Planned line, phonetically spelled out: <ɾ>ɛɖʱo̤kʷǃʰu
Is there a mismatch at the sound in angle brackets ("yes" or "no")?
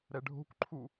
no